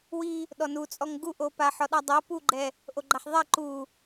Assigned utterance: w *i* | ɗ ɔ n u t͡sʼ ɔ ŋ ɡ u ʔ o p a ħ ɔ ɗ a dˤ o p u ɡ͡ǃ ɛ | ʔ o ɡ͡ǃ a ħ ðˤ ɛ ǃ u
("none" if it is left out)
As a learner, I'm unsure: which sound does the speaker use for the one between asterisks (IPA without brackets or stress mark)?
i